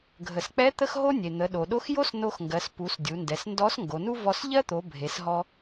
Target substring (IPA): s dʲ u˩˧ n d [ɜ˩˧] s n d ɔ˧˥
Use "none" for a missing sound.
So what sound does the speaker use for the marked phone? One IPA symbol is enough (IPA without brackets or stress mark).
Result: ɛ˩˧